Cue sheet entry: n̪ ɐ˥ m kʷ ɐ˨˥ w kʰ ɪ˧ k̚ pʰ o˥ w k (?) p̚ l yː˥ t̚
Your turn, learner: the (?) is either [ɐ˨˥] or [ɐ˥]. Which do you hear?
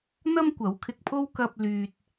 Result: ɐ˥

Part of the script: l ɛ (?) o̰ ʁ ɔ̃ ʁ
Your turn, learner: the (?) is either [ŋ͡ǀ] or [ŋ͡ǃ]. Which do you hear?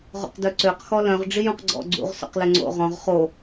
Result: ŋ͡ǀ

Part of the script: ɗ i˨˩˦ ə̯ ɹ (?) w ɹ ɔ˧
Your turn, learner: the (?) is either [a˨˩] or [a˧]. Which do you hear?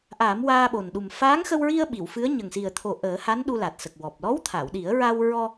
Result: a˧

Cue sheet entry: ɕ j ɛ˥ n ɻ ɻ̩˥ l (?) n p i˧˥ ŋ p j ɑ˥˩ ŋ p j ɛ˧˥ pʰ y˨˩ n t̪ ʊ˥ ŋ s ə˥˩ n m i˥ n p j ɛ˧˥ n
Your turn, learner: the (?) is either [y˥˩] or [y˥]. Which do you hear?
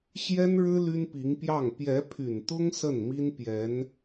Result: y˥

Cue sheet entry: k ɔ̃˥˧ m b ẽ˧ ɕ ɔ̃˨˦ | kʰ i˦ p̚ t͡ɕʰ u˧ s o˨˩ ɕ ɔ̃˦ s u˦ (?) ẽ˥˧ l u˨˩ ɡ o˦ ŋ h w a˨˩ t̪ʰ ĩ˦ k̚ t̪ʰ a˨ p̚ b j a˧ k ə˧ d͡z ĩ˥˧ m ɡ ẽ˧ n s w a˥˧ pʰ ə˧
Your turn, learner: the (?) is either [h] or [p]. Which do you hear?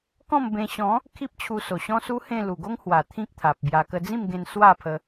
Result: h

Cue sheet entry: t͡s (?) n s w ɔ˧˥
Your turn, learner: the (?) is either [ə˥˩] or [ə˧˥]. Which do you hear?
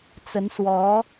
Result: ə˧˥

